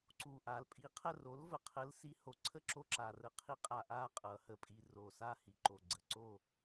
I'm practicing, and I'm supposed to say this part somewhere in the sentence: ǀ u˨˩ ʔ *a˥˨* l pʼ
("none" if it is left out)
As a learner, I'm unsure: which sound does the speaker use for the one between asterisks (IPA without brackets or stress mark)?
a˩˧